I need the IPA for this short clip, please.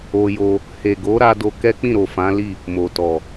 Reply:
o˧ j o˧ | h e˨ ɡ o˨˦ ɾ a˧ d o˧ k ɛ˦ k͡p ĩ˦˨ ɾ o˨ f ã˨˦ l i˦˨ | m o˨ t ɔ˨

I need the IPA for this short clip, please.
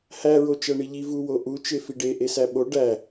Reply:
h æ ɹ o t͡ʃ æ ɳ i ʎ i v u w o ʔ u t͡ʃ e f i ɖ e ʔ e s æ ɓ o ɖ æ

